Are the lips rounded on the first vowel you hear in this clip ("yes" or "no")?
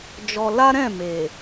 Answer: yes